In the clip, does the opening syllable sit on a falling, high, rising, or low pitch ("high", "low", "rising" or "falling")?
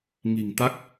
low